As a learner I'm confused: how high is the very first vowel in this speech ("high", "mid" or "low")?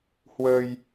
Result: mid